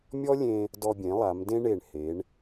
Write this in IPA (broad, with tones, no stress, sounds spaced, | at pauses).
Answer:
mʲ ɔ˥ lʲ ẽ˧ | d ɔ˧ bʲ ẽ˩˧ lˠ a˩˧ m d ẽ˥ ɳ e˧˩ ɳ h e˩˧ ɳ